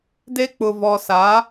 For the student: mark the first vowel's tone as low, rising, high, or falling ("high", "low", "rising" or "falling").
high